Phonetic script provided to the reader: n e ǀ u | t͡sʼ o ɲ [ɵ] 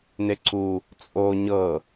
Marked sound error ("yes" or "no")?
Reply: yes